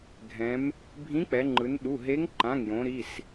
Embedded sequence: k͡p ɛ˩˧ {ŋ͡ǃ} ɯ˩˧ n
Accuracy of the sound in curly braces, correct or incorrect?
correct